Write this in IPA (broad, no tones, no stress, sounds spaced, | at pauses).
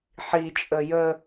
ħ i t͡ʃʼ ə j ə